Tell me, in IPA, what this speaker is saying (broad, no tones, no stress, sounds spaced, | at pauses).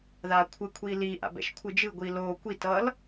ð a kʷʰ ɯ kʷʰ iː l iː ʔ a̰ b ɛ̰ ʃ kʷʰ ɯ d͡ʒ ɯ ɡʷ iː l oː kʷ i t ʌː l